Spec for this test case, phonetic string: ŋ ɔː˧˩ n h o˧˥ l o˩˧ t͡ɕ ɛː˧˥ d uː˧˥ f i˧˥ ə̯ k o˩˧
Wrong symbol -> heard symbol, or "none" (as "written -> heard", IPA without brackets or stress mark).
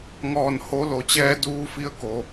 none